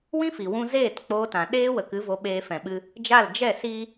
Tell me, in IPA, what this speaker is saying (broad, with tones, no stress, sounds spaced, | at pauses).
w ĩ˦ f i˨ w ũ˧ z eː˦˨ t k͡p oː˧ t ã˨ ɗ eː˦ w ə˨ k ɨ˨˦ v o˧ ɓ eː˧ f ɛ̃˨ ɓ ɨ˧ | d͡ʒ a˦˨ l d͡ʒ ɛ˦˨ s i˦